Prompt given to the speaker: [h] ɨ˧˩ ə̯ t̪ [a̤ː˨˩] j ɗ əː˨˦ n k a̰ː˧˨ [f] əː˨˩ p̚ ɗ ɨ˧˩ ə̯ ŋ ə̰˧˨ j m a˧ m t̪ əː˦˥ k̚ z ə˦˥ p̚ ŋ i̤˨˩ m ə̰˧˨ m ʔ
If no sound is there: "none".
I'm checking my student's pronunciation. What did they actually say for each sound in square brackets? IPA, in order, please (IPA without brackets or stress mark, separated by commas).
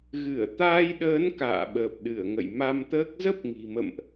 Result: ɣ, aː˧, ɓ